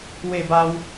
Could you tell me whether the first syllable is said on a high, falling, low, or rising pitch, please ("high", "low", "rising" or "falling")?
falling